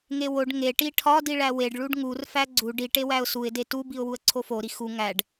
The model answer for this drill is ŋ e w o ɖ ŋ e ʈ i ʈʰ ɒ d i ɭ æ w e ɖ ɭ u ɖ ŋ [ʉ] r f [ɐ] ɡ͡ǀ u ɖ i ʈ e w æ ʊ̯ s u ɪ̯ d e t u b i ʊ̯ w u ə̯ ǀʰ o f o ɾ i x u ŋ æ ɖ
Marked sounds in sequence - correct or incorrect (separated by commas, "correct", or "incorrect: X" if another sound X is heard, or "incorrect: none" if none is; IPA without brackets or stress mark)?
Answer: incorrect: u, incorrect: æ